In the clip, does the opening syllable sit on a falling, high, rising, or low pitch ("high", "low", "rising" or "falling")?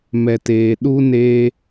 low